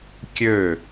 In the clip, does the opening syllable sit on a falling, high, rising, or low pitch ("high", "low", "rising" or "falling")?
falling